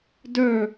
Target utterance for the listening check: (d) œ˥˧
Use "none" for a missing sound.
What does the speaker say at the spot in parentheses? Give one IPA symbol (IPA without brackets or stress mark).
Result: d